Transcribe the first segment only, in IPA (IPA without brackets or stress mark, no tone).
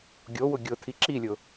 ɡʲ